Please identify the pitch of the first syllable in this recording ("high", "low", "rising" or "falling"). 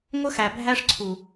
high